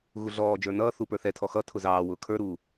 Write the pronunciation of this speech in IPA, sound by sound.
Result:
ɣuɮɔːd͡ʒə˞ nʌː θupə˞θɛtʰɔ xʌ tʰʊzɑːwʊː kʰə˞ɾuː

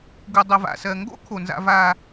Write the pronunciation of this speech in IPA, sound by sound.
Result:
ɡu˨dˤə˨va̰˨sɜ˨ ŋɡo̰˦ kʰo˨nza̰˧ va˧

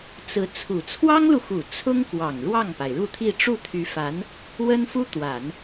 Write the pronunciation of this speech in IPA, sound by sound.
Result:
t͡sɹ̩˧˥ t͡sʰu˨˩ t͡sʰwɑ˥ŋlu˨xu˨˩ t͡sʰʊ˥ŋkwɑ˨˩ŋ ɻwɑ˥˩ŋpa˩ɪ̯ɻu˥˧t̪ʰi˥˧ ʈ͡ʂu˥˩t̪ʰy˧˥fa˧˥n | wə˥nfu˥t̪wa˨˩˦n

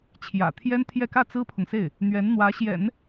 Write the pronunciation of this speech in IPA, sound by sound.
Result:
t͡ɕʰjä̰˨˩t̪ʰjɛ˥nt̪ʰjɛ˥˧ kä˥˩t͡sɹ̩˥pʰʊ˨ŋse˥˩ɪ̯ | n̪ɥɛ˧˥nn̪wä˧˥ɕjɛ̰˨˩˦n

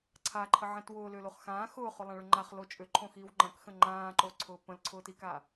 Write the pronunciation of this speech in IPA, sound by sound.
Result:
ǀʰaǃʰəʕɛ̃t wʊːlʏːloχ xãː xʊːχʊlˠãɭʊ ŋ͡ǃaχlo t͡ʃʼʏǃʰõxiːw ŋ͡ǃɐ̃kxə̃ ŋ͡ǃãːǃoǀʰʊː pə̃lǀʰʊːtika

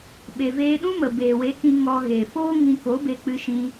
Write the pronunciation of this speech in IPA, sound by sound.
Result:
ɓe˨veː˧ɗũ˦mə˨ beː˨we˨˦kĩ˧ ŋɔ˧ɣe˨foː˦ ŋĩ˧ko˨˦be˧ k͡pɨ˦ʃĩ˦

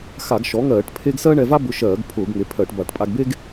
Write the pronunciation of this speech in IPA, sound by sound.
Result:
xa˧˩˧ɡʃɔ˩˥ŋɜː˧˩˧ʈ pʰe˥ɡ sɜ˥ɳɛ˧va˥ bʊ˧ʃɜː˧˩˧ɡ pʰʊː˧˩˧ɡŋe˩˥pʰɜ˧˩˧ʈba˧˩˧ʈ pʼa˧ɡbe˥ɡ

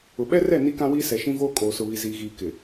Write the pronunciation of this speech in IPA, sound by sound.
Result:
ʊ˨ ɓɛ˦rɛ˦˨ ni˦kã˦wiː˦ sɛ˨ʃĩ˦voː˦ kʼoː˨sʊ˨βi˨ ziː˨ɣiː˨ kɪ˨

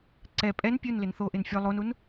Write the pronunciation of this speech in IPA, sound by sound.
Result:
ǀɛ pʼɛn pʲunlɪn θoʔɪn fʲo lˠonun

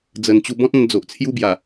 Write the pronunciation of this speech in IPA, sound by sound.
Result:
d͡zə˨˩nt͡ɕu˧ bɔ̃˦t̚ã˧n d͡zo˨ʔt͡sʰju˦ bja˨˩

